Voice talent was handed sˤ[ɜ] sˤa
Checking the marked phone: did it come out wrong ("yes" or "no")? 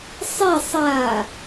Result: yes